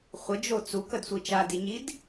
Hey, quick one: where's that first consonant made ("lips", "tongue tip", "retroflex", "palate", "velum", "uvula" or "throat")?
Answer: uvula